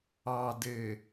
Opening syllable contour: low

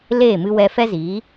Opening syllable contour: falling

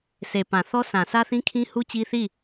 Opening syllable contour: low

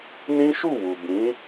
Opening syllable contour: high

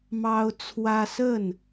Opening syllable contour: high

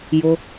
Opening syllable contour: low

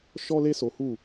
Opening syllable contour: high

